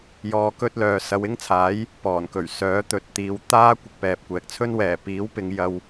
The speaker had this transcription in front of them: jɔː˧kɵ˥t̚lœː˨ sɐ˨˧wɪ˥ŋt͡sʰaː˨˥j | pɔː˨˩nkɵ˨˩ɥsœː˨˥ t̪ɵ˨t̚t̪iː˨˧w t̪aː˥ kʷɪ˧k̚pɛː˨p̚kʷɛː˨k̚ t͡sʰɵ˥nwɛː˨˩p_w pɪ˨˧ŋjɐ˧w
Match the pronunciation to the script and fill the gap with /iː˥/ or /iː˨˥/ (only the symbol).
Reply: iː˨˥